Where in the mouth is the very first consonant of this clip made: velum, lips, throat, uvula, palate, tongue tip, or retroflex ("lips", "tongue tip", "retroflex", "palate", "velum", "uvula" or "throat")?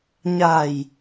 palate